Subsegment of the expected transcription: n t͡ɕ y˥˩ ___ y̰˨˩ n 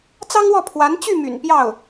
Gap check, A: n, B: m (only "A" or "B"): B